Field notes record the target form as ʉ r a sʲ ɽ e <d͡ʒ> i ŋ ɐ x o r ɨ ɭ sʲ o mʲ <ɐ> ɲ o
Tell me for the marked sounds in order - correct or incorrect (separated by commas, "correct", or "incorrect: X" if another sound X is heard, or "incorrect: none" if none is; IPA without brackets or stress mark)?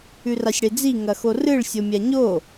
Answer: incorrect: d͡z, incorrect: a